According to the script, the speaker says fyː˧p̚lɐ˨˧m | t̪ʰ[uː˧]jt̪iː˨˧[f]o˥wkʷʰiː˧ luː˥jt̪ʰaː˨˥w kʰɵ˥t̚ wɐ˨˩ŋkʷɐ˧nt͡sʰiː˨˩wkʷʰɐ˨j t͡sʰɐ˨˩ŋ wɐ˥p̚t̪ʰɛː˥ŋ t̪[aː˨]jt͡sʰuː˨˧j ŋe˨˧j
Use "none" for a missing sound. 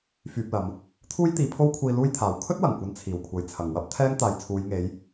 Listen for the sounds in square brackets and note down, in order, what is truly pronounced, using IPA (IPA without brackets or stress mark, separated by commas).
uː˥, pʰ, aː˨